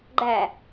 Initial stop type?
click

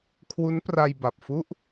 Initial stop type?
aspirated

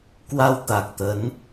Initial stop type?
plain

